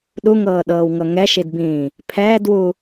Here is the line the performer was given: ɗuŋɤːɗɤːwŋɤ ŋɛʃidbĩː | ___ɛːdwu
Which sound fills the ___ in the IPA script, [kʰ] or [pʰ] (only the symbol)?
pʰ